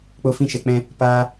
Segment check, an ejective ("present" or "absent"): absent